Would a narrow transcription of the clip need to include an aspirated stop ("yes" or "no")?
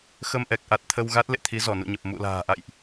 yes